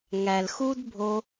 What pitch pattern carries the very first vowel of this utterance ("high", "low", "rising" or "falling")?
low